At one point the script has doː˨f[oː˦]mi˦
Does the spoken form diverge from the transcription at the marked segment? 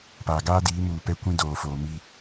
yes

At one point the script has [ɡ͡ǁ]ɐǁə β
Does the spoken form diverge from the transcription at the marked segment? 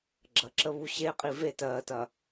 no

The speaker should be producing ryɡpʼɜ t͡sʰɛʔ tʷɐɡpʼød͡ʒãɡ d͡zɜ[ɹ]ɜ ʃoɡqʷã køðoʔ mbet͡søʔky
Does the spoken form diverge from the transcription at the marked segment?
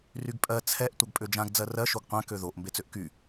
yes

